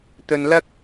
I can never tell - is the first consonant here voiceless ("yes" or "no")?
yes